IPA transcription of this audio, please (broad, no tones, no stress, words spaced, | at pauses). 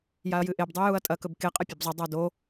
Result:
jaɐ̯jɨʔeb dˤʉjuɐ̯tʼɐ kɵbke qʼɐpʲebzˤɐ dˤado